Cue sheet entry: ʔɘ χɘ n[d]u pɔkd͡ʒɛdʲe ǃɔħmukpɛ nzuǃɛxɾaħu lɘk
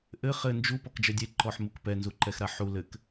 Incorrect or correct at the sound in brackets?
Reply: incorrect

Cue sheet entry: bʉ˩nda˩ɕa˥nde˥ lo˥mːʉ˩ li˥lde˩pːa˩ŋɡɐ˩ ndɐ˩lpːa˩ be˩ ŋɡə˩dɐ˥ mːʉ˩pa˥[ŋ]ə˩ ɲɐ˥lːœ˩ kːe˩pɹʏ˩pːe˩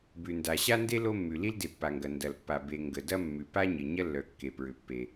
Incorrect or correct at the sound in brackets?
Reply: incorrect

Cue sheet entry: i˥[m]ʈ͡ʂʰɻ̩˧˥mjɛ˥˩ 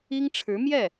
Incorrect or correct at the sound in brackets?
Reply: incorrect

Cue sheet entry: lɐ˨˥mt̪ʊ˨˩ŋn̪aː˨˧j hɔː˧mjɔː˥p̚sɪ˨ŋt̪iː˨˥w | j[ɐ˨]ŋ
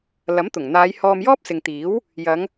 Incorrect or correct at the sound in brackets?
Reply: incorrect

